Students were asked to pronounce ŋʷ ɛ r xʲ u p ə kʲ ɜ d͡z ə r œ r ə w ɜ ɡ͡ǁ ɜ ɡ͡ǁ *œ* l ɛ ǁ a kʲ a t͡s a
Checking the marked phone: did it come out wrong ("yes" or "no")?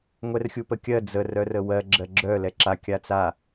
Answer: no